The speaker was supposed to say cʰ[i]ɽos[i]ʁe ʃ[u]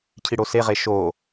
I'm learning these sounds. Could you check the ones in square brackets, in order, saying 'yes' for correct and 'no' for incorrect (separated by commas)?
yes, no, no